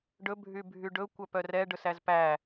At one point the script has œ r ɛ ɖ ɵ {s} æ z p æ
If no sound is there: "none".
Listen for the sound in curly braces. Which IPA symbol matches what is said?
s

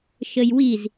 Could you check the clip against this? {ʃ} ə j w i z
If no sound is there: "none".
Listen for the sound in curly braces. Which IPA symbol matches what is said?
ʃ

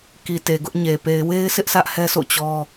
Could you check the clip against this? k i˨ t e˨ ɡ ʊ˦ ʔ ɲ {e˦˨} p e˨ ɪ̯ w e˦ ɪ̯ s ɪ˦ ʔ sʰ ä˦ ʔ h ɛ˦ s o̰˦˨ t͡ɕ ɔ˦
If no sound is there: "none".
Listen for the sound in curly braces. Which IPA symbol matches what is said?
e˨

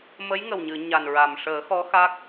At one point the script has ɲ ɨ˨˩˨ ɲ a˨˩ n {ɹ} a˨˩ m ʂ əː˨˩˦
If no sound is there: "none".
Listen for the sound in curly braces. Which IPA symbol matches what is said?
ɹ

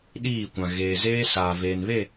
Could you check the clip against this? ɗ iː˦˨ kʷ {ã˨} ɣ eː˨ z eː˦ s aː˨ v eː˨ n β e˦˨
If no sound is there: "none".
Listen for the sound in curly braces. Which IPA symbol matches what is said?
ã˨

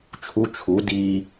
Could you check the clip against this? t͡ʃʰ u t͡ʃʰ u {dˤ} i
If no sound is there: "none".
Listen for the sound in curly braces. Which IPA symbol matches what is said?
d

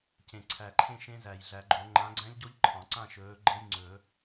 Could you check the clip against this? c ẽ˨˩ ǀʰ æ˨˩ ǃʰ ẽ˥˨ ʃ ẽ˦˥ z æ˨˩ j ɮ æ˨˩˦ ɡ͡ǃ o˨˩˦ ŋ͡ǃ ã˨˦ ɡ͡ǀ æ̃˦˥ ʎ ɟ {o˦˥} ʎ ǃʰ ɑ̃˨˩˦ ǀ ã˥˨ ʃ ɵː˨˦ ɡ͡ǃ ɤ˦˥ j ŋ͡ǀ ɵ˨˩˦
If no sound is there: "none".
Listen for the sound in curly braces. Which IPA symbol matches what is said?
o˦˥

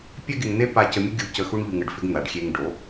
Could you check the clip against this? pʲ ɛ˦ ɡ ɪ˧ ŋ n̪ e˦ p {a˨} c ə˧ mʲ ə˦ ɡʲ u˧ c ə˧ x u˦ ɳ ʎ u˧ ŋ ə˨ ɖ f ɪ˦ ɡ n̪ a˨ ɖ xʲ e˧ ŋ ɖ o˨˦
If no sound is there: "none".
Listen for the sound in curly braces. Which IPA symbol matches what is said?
a˧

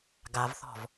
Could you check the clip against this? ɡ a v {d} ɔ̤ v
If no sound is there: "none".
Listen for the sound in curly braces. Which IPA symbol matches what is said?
θ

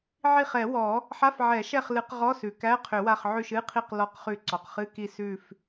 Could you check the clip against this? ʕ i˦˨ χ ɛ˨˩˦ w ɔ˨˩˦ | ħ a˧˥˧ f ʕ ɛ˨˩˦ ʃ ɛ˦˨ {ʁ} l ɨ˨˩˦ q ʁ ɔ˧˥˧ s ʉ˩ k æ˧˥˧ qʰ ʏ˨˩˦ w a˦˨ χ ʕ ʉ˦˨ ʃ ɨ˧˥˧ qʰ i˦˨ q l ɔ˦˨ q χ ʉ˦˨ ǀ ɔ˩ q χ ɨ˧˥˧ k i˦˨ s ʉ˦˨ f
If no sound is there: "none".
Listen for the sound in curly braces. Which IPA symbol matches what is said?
χ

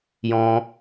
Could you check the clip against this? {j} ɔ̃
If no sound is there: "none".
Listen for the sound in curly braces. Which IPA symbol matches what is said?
j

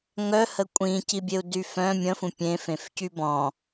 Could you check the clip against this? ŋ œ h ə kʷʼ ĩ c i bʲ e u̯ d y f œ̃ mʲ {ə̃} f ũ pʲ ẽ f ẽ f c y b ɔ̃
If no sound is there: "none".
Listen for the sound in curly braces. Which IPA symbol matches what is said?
ə̃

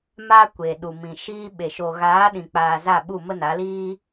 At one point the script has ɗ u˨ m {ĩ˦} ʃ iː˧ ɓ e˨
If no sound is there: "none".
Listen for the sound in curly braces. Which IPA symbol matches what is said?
ĩ˨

